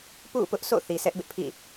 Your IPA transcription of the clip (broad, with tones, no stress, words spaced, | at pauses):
pṵ˦˨pʊ˦ʔsʰo̰˦˨ θi˨sɛ˦ʔbɪ˦ʔpʰḭ˦˨